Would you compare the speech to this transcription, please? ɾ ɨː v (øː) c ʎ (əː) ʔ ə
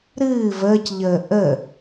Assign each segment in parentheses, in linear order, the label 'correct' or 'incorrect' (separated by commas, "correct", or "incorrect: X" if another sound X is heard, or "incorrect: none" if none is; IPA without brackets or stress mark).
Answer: incorrect: əː, correct